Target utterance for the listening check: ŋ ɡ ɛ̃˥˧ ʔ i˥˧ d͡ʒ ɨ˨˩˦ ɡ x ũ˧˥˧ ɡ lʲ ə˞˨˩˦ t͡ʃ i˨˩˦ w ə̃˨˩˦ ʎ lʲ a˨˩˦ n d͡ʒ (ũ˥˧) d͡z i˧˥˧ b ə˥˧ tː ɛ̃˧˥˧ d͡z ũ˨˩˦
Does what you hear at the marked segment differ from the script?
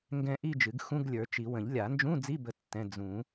yes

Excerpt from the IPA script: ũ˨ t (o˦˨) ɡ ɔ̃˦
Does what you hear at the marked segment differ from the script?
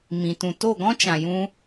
no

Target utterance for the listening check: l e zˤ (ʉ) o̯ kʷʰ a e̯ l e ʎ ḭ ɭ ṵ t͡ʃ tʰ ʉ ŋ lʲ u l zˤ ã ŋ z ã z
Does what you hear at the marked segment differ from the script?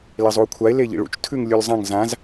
yes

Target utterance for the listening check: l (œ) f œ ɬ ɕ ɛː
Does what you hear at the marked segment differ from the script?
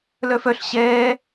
no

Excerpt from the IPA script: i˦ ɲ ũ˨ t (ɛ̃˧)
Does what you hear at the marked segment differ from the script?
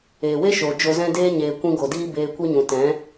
yes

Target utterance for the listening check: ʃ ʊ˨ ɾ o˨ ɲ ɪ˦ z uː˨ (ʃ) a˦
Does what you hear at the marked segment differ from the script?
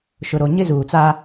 yes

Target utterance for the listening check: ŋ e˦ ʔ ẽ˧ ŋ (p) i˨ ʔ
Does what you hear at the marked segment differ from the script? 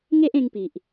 no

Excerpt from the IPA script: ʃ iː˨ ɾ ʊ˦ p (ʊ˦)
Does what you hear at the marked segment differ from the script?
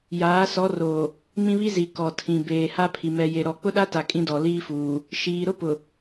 yes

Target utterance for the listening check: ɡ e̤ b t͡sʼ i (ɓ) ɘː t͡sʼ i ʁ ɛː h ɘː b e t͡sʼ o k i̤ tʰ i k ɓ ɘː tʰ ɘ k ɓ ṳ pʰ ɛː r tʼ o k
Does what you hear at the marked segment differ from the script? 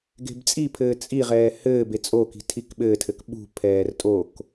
yes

